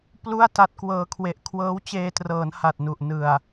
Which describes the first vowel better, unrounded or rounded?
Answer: rounded